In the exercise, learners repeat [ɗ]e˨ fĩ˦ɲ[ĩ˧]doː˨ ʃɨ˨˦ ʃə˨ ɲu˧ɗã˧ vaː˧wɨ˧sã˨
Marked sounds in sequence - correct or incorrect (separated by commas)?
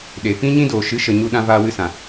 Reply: correct, incorrect